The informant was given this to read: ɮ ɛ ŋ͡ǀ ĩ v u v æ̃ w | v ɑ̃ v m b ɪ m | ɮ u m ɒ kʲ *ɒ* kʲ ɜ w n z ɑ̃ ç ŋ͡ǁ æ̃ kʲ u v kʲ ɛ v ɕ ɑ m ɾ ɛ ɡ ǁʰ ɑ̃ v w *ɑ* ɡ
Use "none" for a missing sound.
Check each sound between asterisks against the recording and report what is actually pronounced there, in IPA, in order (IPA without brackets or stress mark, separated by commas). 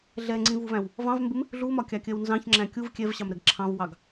ɑ, ɑ